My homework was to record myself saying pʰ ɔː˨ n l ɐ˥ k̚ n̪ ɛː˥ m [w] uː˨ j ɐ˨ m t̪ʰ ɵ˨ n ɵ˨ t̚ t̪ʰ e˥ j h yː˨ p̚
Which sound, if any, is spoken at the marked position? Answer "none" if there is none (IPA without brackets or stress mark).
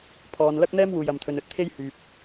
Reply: w